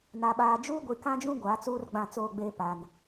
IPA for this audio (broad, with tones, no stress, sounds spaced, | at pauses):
n a˨ ɓ aː˨ d͡ʒ uː˦ ɡʷ i˨ k ã˦ d͡ʒ ũ˦ ɡʷ aː˨˦ t͡s uː˦ r ɡ͡b ã˦˨ t͡s oː˦˨ ɡ͡b eː˦ p a˨ n